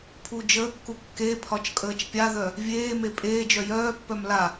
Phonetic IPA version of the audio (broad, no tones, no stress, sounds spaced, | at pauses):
pʰ u d͡ʒ əː kː u kː e pʰ ɒ t͡ʃ kʼ əː t͡ʃ pʲ a ð œ | vʲ eː m e pʼ eː d͡ʒ œ j œː pː œ m l a